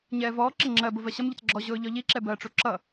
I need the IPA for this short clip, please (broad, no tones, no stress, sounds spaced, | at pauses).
ɲ ɛː v ɔː ǁ ɪ ŋ͡ǁ ɜ b ʊ v ɜ ɕ ʌ m ʎ ʊ t͡s ɡ͡ǁ ɔ ʑ ʊː ʎ ɔ ʎ i ǁ ɛ b ɜ ʈ͡ʂ u ǁ ʌ